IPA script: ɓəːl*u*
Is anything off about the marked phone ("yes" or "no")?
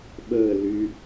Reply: yes